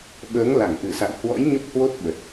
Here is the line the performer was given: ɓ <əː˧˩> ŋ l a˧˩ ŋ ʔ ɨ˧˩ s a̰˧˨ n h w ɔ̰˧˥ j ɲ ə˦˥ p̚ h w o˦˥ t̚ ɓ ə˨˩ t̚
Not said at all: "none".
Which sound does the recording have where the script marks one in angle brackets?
əː˨˦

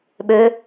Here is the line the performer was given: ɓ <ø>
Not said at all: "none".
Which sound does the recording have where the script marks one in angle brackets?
ø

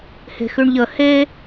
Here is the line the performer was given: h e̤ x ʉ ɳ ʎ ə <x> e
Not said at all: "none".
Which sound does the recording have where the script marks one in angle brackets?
h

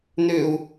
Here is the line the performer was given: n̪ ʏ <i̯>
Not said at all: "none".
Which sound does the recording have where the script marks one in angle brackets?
u̯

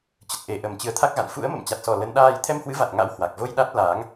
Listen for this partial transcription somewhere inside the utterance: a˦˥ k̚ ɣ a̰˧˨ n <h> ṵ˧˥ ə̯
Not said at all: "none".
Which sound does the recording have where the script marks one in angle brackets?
f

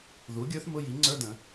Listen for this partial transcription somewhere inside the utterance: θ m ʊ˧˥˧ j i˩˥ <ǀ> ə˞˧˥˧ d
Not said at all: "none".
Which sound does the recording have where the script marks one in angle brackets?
ŋ͡ǀ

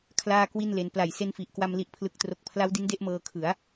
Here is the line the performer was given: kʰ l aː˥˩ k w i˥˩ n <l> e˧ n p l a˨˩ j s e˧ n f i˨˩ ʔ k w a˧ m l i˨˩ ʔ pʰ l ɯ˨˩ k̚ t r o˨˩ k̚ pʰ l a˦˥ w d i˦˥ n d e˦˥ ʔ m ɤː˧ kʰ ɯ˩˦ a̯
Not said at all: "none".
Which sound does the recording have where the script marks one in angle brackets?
l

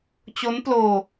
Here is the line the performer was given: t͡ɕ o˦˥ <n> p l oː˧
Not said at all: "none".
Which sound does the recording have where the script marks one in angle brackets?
n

